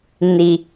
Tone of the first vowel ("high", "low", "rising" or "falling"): low